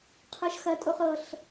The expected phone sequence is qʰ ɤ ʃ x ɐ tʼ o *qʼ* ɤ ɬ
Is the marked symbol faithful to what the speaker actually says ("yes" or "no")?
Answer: no